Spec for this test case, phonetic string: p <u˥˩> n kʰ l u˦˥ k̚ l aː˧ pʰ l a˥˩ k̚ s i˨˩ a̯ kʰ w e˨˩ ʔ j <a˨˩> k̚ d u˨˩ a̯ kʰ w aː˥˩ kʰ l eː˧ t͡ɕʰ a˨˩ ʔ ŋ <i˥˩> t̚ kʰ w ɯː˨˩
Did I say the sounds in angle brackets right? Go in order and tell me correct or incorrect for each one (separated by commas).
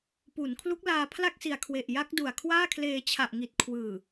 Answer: incorrect, incorrect, incorrect